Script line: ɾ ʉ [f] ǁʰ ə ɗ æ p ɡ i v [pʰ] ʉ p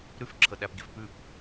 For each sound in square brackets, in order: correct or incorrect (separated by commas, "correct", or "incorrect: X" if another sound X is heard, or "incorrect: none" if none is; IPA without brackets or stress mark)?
correct, incorrect: p